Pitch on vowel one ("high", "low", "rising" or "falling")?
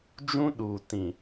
high